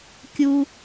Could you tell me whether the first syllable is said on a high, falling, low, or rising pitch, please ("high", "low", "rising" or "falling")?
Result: high